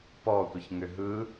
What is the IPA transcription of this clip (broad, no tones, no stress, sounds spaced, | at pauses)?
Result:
p ɔ tʷ ə ç ŋ ʏ ɦ ɯ